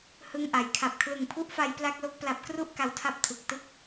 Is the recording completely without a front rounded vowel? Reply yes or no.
yes